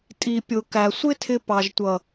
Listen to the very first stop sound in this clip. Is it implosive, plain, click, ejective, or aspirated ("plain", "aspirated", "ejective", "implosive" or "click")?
ejective